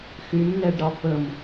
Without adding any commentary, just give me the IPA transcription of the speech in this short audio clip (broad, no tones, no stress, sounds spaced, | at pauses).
x y m n ɛ ɖ ɾ ɒ f ə m